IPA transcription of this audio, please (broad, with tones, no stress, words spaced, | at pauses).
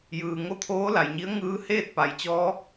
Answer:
jɯː˩ ŋo˥˨t̪ʰoː˧˥la˩jɲi˧˥ə̯ ŋɯː˧˥ heː˥˨t̚pa˩jt͡ɕɔː˧˥